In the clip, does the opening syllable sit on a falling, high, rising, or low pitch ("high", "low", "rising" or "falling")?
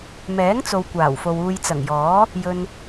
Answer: rising